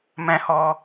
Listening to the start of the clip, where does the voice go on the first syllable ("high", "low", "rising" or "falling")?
high